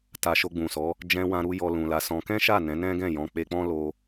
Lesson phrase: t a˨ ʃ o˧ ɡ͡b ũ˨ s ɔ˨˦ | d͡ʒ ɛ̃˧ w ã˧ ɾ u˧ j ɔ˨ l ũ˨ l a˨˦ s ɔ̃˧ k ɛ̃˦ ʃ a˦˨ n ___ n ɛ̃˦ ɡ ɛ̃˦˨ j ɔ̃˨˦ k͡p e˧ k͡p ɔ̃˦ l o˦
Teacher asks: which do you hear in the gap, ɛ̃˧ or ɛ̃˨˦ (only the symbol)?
ɛ̃˨˦